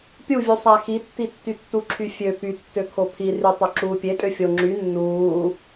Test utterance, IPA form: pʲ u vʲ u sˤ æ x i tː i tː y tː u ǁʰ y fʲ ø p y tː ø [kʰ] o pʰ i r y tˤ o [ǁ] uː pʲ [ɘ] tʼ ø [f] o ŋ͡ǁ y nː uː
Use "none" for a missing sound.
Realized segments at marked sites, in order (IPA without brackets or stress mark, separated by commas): kʰ, ǁ, e, fʲ